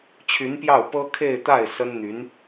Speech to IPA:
t͡ɕʰ y˧˥ n p j ɑ˥˩ ʊ̯ p ɤ˥ kʰ e˥˧ ɪ̯ t̪ a˥˩ ɪ̯ s ə˥ n n̪ y˧˥ n

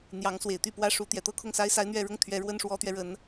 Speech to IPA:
n̪ j ɑ˧˥ ŋ s w e˨˩ ɪ̯ t̪ y˥˩ p w ä˥ ʂ u˧˥ t̪ j ɛ˨˩ t̪ ɤ˥ kʰ ʊ˥˩ ŋ s a˥ ɪ̯ s a˥ ɪ̯ n̪ ɥ ɛ˥˧ ɻ ʊ˥˩ ŋ t̪ʰ ɥ ɛ˧˥ ɻ w ə˥ n ʂ w ɔ˧˥ t̪ ɥ ɛ˧ ɻ ə˧˥ n

